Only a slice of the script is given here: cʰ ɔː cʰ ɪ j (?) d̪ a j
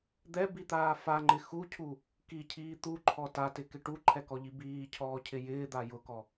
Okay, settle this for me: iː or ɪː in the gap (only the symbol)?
ɪː